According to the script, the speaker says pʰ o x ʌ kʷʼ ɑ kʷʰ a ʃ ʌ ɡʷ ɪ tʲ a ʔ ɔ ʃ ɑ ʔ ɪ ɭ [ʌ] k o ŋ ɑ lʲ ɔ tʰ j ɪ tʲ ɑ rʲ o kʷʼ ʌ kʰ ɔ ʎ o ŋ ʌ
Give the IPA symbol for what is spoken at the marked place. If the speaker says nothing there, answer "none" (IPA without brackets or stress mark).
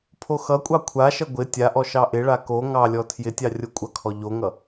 a